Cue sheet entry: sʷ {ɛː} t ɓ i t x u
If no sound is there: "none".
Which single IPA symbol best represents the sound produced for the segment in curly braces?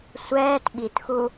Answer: ɛː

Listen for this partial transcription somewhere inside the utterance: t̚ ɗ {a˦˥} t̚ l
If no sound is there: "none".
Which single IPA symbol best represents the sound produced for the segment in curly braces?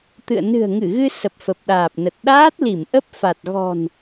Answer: aː˦˥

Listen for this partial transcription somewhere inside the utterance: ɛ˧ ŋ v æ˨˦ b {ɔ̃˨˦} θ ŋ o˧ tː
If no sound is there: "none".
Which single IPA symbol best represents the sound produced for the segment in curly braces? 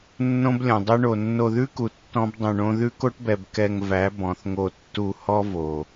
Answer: ɔ̃˨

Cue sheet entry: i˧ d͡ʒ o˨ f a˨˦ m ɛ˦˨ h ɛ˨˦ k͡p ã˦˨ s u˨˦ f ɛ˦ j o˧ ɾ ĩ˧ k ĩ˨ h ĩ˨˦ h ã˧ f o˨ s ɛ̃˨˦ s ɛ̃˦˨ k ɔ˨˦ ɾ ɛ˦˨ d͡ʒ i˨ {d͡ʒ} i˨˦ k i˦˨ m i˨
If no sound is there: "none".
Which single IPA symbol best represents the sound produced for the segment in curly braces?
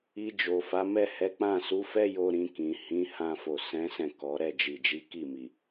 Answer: d͡ʒ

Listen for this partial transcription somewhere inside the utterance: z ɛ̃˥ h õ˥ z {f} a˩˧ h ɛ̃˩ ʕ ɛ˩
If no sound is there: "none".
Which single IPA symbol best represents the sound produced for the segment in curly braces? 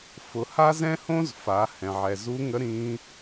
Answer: f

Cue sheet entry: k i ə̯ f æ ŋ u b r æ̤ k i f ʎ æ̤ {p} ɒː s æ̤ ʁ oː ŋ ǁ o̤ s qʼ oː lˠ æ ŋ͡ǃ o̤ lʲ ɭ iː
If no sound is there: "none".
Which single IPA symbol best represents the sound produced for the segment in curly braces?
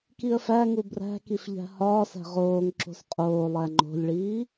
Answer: h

